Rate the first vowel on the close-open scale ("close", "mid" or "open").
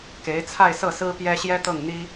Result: mid